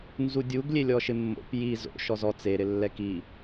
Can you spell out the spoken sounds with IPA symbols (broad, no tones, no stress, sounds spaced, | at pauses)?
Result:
n z u dʲ u ɡ lʲ e lʲ ɔ ʃ ɪ mː o̰ p j i z o̰ ʃ ɔ z ɔ t͡s e ɾ ɪ lː ɛ k i